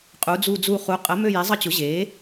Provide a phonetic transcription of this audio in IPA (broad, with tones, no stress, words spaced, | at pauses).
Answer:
qʼu˩˥d͡zu˦˨d͡zu˦˨ χu˩˥qʼə˩˥ mø˦˨je˩˥zˤə˦˨t͡ɕʊ˩˥ ʑe˩˥